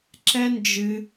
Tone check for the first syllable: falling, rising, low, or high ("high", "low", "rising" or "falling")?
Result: high